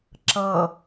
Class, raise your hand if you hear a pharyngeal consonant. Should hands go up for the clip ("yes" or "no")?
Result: no